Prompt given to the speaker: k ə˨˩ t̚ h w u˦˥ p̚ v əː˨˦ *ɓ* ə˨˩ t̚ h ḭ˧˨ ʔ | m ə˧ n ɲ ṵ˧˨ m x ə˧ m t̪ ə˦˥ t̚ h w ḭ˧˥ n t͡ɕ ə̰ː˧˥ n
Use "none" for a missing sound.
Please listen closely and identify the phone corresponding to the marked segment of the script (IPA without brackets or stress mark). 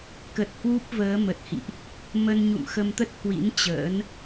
m